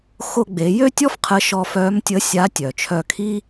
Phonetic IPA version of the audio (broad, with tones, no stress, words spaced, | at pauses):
xo˧ɡ͡be˩˧jø˥tʲɔ˥f qʰə˧˥ʃɔ˧ fœ˧˥mtʲə˧˥ sʲa˧˥tʲœ˩t͡ʃʰœ˧ kʰi˥